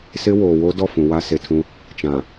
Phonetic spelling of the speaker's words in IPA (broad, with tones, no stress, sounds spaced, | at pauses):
s ɪ˦ w oː˨ w o˦ d ɔ˦˨ f ũ˨ w a˦ s e˨ tʰ ũ˦ | t͡ʃ ã˨